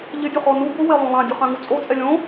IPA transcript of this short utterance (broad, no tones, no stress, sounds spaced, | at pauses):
ʎ ɪ dʲ u χ ɔ n u b ʊ w e lˠ õ lˠ ã dʲ ʊ χ ã ŋ u t͡sʼ o t͡sʼ ɛ lʲ õ